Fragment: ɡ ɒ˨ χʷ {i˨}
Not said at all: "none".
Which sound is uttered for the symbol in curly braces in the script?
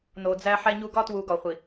i˨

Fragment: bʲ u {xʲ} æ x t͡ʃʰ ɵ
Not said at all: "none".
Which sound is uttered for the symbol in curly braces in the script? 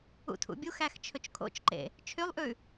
x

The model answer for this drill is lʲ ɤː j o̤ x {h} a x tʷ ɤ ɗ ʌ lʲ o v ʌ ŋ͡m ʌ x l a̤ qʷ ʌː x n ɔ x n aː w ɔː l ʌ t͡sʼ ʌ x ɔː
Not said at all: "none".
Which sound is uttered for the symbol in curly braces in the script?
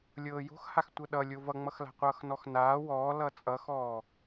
h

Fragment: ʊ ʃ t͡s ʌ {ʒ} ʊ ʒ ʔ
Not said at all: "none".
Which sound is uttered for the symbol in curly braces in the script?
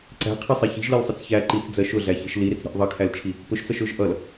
ʃ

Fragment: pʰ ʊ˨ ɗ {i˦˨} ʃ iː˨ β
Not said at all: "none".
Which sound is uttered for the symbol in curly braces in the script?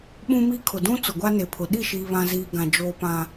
i˦˨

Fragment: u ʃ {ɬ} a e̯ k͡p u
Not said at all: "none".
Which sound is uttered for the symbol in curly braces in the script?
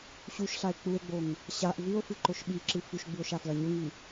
ɬ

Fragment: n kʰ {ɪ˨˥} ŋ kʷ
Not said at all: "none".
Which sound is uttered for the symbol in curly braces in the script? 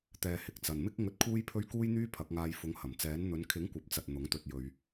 ɪ˨˥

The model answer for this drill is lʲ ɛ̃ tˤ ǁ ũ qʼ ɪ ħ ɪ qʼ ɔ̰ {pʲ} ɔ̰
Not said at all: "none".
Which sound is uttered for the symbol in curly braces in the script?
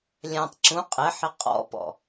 p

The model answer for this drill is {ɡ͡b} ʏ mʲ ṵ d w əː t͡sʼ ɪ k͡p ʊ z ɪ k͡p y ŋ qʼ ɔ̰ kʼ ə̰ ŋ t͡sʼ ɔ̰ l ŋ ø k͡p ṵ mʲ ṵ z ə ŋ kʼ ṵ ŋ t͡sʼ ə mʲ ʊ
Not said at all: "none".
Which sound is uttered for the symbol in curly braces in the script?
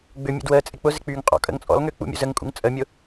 ɡ͡b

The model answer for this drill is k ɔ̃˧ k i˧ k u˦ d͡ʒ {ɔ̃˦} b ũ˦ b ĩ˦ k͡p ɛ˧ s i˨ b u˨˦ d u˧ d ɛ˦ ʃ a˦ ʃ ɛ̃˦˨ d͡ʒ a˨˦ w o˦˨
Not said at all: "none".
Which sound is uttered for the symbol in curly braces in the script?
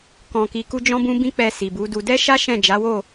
ɔ̃˦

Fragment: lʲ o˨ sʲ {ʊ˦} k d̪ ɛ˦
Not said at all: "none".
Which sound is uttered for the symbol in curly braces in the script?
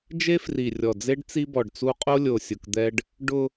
ʊ˨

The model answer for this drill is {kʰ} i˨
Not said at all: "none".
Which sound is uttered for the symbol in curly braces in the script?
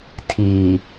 tʰ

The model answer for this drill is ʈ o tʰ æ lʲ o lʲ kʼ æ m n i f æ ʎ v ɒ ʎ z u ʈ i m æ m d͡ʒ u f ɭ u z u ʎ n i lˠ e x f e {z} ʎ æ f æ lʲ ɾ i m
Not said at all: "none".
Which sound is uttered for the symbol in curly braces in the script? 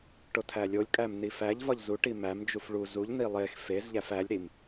z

